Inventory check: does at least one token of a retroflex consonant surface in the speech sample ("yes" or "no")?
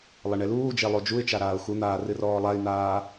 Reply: yes